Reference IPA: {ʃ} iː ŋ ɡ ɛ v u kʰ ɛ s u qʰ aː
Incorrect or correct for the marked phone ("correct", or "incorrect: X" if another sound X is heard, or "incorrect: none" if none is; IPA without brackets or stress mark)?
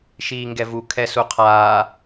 correct